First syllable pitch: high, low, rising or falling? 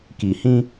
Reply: low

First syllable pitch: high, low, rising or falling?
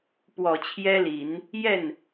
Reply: low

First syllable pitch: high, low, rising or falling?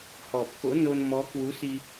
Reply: low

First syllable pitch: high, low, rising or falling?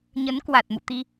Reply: rising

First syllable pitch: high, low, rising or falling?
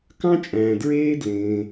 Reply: high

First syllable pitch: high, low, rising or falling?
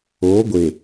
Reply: rising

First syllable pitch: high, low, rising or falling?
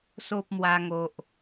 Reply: high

